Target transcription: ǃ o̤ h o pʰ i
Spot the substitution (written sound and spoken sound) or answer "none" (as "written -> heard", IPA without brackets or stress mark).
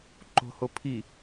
none